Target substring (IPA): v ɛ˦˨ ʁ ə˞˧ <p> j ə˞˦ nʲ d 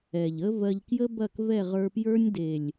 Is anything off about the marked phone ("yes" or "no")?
no